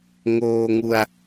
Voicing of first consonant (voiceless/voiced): voiced